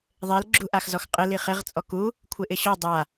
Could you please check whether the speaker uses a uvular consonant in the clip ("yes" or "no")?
yes